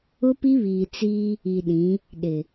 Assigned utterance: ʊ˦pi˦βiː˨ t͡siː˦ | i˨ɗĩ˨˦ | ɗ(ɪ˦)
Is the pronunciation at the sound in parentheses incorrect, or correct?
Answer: incorrect: ɪ˨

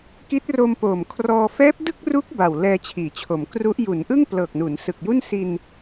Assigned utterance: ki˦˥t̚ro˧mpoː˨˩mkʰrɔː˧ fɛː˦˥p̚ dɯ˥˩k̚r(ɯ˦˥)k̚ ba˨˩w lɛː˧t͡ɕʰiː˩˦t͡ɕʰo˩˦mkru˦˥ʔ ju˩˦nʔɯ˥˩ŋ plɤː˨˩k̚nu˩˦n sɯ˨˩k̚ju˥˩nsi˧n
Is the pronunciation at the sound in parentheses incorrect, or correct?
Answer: incorrect: u˦˥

